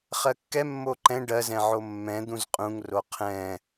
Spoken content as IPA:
χɜkːɛ mːoǃɛ̃ ɖɜzɛ̃ʕo mːɛ̃d̪ũz qʼũŋro qʰɛ̃

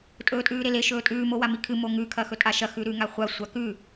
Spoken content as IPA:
tʼɵːtʼʉːɾele ʃɵːtʼʉː mowamikʰɨ moŋʉ kʰɐxɵtʼaʃɐ xʉɾʉ ŋaχʷa sʷakʉ

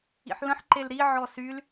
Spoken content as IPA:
ḭħlə̃ħ ǃelɾi ʕɔsyl

